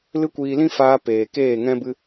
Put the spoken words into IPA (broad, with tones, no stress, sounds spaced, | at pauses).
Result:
l ɨ˦ kʷ iː˧ l ĩ˦ f aː˧ p eː˨ k eː˦˨ ŋ ɛ̃˦ b ɨ˦